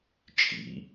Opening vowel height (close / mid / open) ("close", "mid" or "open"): close